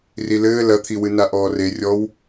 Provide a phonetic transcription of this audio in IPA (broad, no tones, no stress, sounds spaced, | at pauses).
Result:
r i l ɘː l ɐ t̪ʰ i w ɨ n a ʔ ɔː r e rʲ ɔ w